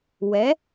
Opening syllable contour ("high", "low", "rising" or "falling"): rising